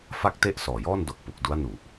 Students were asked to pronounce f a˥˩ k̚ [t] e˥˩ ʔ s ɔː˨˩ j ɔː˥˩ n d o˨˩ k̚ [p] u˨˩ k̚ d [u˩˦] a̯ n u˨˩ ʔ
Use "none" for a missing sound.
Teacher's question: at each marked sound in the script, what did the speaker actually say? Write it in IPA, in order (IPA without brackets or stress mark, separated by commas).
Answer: t, p, u˦˥